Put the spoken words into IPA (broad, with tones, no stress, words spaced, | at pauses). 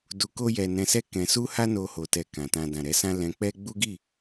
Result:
du˧ko˦jɛ˧ nɛ̃˧sɛ˦ kɛ̃˧ su˦ha˦ no˧ho˨tɛ˨ kã˨tã˧ dã˨ɾɛ˨˦sã˦ lɛ̃˧k͡pɛ˦ ɡ͡bu˦ɡi˦˨